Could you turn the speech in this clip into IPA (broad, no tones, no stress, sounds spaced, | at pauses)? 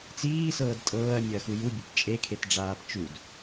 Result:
t͡s iː s ɤː d tʼ ɤː ɐ̯ mʲ ɤ ɐ̯ x u j u bʲ e p t͡ʃʼ e kʰ e t ɖ͡ʐ aː p t͡ʃ u d